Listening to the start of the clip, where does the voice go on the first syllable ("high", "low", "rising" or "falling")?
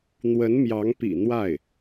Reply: rising